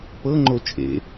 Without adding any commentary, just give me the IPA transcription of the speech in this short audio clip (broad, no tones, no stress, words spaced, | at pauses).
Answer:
pɤŋ͡ǃo t͡ʃʼḛ